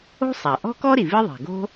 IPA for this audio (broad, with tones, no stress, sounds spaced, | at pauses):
o̤˥ sˤ æ˩ ʔ ɔ̤˥ k ɔ˥ ɾ i˩ v i˥ ðˤ æ̤˩ ɡ o̤˥